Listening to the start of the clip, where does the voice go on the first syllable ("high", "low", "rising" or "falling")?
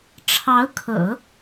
rising